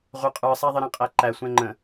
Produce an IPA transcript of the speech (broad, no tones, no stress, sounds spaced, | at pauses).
ʁʷ ə˞ qʼ ə˞ sˤ æ ðˤ ɪ ɾ æ̃ qʼ æ ǃ æ sʷ ɛ̃ ŋ͡ǃ ə̃